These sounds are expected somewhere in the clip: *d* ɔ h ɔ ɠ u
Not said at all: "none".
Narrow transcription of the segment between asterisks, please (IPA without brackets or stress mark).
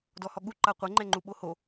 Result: d